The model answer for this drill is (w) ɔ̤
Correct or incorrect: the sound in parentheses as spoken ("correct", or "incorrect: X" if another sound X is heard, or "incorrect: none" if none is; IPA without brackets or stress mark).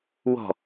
correct